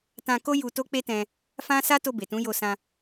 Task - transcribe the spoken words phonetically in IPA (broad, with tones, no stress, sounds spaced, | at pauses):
t ã˧ k o˦ j u˧ t o˦ k͡p e˦ t ɛ̃˧ | f ã˦ s a˦ t o˧ b e˨ t ũ˨˦ j o˧ s ã˧